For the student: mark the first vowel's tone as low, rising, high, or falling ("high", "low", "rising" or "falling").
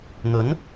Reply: rising